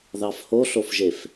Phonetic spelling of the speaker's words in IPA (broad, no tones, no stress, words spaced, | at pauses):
ðɑfhoɬofʒef